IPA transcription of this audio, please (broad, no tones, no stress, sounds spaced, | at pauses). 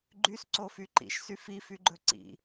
ɡ͡ǃ y s ǀ o f y ǃ ḭ ʃ s y f i f y ɡ͡ǃ ɵ ǀ ḭ